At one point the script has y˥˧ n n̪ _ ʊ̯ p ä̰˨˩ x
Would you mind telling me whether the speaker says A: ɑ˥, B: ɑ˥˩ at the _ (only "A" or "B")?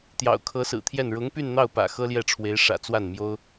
B